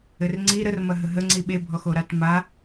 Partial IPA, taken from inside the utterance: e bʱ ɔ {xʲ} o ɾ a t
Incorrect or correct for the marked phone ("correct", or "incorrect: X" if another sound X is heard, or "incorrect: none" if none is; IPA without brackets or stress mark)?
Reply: incorrect: x